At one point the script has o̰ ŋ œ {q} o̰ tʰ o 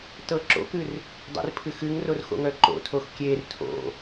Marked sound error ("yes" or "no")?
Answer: yes